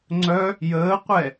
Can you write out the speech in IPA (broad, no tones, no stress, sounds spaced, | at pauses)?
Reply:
ŋ͡ǀ œ | j əː qʷ ɛ